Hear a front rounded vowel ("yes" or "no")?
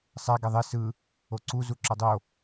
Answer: no